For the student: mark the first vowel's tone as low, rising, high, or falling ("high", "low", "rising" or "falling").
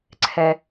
low